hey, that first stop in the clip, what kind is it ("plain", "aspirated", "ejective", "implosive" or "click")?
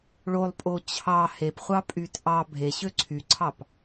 ejective